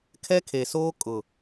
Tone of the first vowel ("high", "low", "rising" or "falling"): high